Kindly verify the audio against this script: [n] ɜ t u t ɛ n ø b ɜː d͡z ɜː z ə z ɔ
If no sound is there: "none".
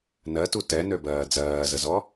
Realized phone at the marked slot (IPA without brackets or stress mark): n